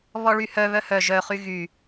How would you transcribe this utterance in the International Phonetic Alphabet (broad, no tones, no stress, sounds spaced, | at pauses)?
β ɔ ɭ y h œ β œ h œ ʒ œ χ y ɣ y